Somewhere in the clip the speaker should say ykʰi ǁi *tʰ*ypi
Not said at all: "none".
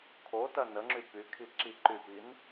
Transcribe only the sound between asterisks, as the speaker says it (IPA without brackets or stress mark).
ǃ